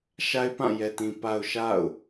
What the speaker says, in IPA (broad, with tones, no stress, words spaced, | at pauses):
ʃa˦ɪ̯pã˦˨jɛ˨tĩ˨ pa˨ʊ̯ ʃa̰˦˨ʊ̯